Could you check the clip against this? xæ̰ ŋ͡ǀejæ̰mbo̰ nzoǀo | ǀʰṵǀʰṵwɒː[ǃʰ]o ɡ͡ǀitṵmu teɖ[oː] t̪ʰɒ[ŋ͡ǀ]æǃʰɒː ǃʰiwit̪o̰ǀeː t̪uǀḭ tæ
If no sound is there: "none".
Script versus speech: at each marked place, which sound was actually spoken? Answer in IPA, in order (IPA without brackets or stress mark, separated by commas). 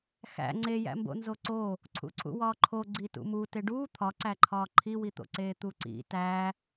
ǃʰ, uː, ǀ